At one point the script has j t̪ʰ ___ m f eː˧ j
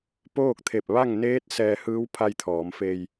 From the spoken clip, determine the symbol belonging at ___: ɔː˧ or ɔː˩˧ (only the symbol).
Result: ɔː˩˧